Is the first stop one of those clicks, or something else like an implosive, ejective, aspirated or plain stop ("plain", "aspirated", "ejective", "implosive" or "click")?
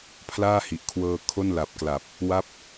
aspirated